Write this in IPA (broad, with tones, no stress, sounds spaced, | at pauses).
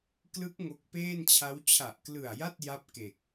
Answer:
k l ɯ˦˥ k̚ ŋ o˦˥ k̚ p eː˥˩ n t͡ɕʰ a˦˥ w t͡ɕʰ a˨˩ ʔ k l ɯ˨˩ a̯ j a˥˩ t̚ j a˥˩ p̚ k e˨˩ k̚